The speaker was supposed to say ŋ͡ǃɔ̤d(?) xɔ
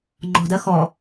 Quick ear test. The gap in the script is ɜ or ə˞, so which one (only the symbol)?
ɜ